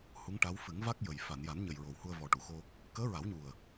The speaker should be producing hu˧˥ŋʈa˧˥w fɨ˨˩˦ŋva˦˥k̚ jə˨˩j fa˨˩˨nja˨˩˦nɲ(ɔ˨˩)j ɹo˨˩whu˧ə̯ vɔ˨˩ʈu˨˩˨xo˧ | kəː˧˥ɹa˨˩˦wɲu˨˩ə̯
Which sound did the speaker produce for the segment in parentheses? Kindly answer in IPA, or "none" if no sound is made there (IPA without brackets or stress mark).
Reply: ə˨˩